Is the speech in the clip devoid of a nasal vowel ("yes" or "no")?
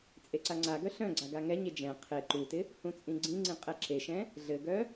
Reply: no